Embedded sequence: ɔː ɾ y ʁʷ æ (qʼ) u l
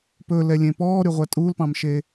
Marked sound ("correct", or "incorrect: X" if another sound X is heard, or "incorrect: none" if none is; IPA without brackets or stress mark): incorrect: tʼ